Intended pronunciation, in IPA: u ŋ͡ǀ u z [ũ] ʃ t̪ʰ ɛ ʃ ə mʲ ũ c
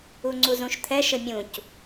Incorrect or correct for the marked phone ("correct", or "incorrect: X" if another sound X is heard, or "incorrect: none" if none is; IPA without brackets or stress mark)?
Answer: correct